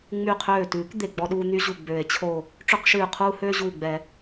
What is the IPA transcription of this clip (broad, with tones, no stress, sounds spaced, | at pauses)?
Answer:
ŋ͡m y˧˩ qʰ øː˧˩ t ʉː˨˩˦ k d̪ e˧˩ ɡ͡b ɔ˥ ɗ uː˥ n̪ y˥ ʑ u˧˩ ɡ͡b ø˨˩˦ e̯ t͡ɕʰ o˧˩ | ʈ͡ʂ ø˥ q ʃ ʉː˧˩ qʰ uː˥ h øː˥ ʑ uː˧˩ ɡ͡b ɛ˨˩˦